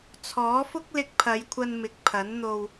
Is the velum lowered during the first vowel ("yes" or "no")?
no